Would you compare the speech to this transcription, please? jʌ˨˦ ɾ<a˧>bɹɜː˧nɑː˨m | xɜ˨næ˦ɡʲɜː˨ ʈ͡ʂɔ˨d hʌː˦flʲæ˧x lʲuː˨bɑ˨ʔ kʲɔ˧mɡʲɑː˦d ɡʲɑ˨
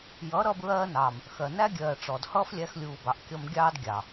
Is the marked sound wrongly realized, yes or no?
yes